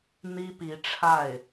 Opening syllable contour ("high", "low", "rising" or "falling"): high